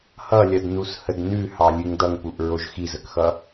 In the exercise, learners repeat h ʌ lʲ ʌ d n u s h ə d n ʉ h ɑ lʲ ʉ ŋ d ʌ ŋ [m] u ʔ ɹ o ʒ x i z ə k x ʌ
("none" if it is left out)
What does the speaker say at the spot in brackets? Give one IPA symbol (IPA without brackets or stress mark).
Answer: p